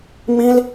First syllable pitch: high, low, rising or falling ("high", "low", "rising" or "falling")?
high